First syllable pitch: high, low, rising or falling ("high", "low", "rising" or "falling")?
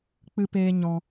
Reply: high